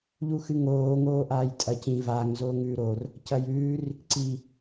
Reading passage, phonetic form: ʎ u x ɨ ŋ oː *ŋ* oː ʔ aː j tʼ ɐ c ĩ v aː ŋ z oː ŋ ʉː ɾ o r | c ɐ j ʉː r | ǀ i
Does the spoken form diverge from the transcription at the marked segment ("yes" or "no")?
no